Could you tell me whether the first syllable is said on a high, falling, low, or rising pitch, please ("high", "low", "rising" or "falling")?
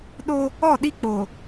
high